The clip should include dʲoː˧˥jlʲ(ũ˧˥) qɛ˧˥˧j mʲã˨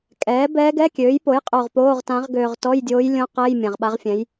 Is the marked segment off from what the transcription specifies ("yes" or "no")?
yes